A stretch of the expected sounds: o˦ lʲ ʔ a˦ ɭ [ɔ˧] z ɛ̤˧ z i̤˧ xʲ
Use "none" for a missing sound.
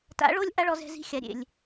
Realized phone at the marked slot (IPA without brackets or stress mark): ɔ˧